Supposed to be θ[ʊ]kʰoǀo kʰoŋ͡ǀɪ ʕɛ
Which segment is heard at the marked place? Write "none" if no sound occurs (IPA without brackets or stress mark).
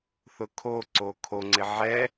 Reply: ʊ